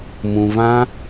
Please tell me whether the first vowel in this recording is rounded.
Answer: yes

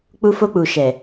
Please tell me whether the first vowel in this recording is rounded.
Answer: yes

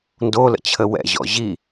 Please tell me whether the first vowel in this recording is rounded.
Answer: yes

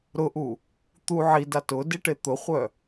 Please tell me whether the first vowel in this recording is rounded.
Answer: yes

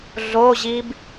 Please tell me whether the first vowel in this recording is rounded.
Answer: yes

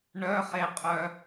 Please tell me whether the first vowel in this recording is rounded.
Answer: yes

